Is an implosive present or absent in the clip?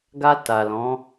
absent